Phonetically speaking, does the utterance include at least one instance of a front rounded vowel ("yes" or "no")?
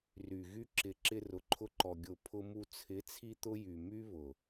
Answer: yes